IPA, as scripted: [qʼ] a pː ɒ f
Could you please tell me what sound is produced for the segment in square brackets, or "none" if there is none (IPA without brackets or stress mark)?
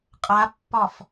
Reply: qʼ